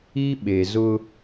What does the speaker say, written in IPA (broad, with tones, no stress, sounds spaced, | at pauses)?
i˦ ɓ e˨ z ʊ˦